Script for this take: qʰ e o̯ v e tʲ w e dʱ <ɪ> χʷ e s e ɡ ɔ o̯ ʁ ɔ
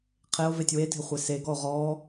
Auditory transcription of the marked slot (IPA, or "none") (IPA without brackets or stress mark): ɪ